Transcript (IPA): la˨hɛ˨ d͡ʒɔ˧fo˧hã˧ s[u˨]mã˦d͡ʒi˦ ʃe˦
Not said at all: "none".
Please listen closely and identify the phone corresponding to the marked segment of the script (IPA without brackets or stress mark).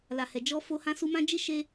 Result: u˧